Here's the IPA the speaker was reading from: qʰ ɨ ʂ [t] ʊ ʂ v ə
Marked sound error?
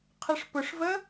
yes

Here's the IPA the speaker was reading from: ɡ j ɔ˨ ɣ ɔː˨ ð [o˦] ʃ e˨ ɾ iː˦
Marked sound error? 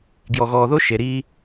no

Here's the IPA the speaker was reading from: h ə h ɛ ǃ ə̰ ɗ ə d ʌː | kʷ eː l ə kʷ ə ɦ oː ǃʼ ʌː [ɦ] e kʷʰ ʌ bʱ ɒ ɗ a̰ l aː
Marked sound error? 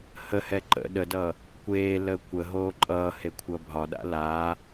yes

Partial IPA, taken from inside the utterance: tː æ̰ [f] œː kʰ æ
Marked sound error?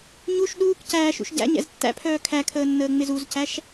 yes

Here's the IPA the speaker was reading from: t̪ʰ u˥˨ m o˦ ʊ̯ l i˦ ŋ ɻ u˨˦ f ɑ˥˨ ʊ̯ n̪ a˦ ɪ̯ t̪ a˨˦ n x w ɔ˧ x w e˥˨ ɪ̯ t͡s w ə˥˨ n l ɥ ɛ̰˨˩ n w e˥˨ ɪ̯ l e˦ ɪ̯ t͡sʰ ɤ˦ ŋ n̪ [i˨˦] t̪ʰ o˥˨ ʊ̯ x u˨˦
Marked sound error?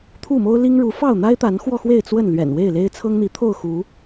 no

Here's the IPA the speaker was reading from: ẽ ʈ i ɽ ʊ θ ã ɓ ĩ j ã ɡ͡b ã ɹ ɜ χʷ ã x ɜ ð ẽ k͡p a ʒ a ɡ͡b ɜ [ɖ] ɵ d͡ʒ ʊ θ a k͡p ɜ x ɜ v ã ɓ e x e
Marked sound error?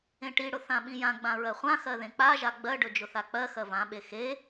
no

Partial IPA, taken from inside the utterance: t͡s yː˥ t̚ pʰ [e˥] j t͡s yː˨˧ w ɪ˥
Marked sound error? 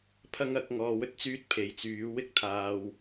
yes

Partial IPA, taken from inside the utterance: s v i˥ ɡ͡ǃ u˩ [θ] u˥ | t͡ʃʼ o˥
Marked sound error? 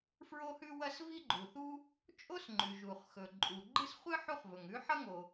no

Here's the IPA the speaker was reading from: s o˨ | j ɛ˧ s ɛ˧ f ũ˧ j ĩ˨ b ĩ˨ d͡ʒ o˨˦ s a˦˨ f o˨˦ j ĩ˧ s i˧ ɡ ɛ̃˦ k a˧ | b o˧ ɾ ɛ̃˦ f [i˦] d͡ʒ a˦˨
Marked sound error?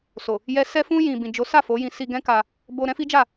no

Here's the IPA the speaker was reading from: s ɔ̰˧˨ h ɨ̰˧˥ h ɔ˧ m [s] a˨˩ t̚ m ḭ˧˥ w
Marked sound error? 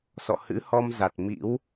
yes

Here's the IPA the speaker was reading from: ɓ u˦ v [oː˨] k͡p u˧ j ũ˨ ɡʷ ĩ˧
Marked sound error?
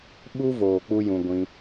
no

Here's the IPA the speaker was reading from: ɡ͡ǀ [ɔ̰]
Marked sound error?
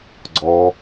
yes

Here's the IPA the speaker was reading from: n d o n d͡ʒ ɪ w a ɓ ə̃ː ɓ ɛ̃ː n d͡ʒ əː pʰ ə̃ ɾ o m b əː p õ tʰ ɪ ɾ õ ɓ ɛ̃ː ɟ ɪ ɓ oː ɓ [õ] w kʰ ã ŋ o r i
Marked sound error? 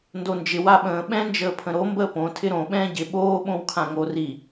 no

